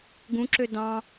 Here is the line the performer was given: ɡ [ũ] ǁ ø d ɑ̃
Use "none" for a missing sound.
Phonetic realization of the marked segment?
ũ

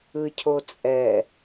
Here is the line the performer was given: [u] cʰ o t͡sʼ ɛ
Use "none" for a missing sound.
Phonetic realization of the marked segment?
ɯ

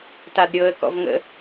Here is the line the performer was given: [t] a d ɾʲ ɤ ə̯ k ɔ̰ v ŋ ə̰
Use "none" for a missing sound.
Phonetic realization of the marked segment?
t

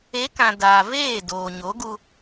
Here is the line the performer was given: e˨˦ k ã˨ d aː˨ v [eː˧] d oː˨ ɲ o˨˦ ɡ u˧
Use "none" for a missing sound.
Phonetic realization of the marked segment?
eː˦˨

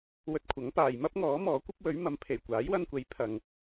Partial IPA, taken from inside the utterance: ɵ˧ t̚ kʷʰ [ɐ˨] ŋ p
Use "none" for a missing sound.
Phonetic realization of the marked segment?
ɐ˨˥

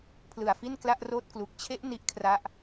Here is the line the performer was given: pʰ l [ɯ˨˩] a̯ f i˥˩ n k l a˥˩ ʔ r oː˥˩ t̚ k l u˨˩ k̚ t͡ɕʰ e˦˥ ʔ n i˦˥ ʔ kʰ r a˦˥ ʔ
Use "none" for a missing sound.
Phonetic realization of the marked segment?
ɯ˨˩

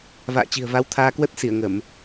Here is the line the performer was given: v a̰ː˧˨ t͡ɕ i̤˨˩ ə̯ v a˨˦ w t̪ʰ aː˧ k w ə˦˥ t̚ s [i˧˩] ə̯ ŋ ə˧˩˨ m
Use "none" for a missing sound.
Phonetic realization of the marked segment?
i˧˩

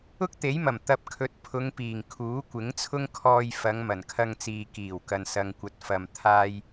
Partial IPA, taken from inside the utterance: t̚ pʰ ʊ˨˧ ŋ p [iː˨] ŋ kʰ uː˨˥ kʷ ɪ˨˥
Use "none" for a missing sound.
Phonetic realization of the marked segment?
iː˨˩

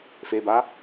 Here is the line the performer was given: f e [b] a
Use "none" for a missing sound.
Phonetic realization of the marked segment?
b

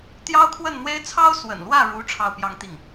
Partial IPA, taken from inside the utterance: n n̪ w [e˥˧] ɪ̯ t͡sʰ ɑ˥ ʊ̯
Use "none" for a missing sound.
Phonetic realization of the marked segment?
e˥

